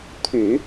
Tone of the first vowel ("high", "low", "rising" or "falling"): low